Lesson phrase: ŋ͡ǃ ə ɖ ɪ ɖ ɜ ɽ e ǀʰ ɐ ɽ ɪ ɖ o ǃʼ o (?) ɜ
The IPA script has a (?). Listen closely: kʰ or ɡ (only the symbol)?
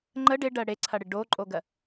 ɡ